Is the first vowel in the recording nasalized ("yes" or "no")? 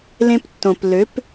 yes